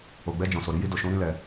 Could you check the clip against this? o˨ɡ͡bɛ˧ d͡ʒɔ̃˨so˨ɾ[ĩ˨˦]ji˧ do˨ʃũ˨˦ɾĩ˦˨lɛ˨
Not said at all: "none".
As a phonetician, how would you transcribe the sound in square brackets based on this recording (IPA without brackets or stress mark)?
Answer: i˨˦